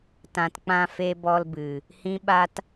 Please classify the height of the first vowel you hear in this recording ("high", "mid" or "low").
low